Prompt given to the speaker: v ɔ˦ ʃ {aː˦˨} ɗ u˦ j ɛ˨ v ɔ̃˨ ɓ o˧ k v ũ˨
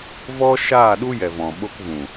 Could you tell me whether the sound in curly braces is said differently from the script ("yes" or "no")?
no